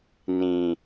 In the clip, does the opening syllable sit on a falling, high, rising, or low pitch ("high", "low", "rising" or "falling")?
low